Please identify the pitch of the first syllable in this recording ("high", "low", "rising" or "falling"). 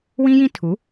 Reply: high